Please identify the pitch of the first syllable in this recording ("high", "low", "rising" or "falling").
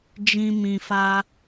high